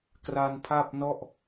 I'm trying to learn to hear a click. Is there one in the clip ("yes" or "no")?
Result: no